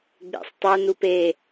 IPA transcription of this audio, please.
ɡ͡b ḛ sˤ tˤ o n u p e

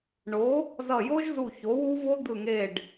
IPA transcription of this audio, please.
ɳ o˩˥ | z ʌ˧˩ j o˦˥ ʒ z u˧˩ ç o˩˥ w u˦˥ v o˦˥ d̪ ɯ˧˩ ŋ e˧˩ ɖ

